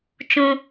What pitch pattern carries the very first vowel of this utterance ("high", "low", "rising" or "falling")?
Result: high